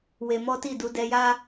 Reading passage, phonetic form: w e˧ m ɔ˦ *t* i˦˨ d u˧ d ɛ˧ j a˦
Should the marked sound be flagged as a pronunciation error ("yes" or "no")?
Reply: no